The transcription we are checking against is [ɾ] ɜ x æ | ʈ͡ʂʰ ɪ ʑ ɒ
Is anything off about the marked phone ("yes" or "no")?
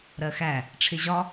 no